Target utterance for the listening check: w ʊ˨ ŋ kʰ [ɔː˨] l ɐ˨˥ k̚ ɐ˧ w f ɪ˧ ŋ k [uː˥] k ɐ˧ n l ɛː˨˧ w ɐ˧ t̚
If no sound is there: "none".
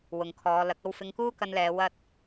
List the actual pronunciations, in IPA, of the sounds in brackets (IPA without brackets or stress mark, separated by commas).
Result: ɔː˨˧, uː˥